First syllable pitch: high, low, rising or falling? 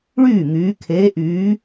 falling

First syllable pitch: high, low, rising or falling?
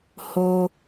low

